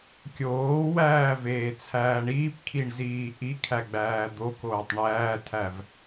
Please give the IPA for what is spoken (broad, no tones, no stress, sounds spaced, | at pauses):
kʲ oː w æː v eː t͡sʰ æː ɳ iː p kʰ i ɳ z iː ʔ i kʰ æ ɡ͡b æː d̪ o k oː tˤ ɳ æː tʰ æ v